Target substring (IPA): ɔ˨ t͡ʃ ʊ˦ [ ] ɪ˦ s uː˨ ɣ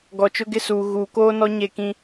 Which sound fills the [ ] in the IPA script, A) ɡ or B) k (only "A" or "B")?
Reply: A